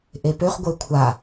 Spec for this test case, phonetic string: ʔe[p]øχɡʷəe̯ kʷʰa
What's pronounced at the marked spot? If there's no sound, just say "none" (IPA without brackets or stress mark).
p